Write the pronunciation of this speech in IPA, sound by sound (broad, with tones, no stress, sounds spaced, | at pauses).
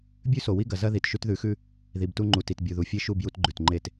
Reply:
bʲ ʉ˦ s o˨ w i˦ ɡ ɐ˨ z ɐ˦ ð i˨ t ʃ ʉ˦ t ð ʉ˨˦ x ʉ˦ | ð i˨ b t u˦ ŋ͡ǃ u˨ t i˨ t bʲ u˨ ð u˨ fʲ e˦ ʃ u˦˨ b j u˦ t ɡ͡ǃ ʉ˨ t ŋ͡ǃ e˦˨ t